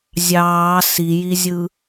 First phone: zʲ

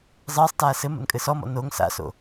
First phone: zˤ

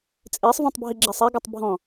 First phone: t͡sʼ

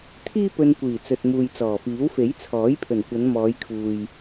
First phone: t̪ʰ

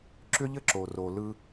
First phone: ǁ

